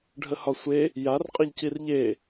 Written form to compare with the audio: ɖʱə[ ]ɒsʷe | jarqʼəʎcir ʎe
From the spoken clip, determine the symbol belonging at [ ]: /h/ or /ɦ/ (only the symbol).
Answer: h